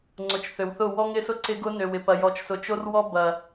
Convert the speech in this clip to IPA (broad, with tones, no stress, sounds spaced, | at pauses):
ŋ͡ǀ ʊ˨ t͡ʃ θ ø˨ w θ ʊ˦˨ w ɔ˦ ŋ ɪ˦ s ʊ˦ ǀ ɪ˦ ɡ ʊ˦ n ø˨ w ɪ˨ p ɐ˨ j ɔ˨ t͡ʃ s ʊ˨ t͡ʃ o˦ r w ɔ˦ b ɐ˨